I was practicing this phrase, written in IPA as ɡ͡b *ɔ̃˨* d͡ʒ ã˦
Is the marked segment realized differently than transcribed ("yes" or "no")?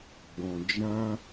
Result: no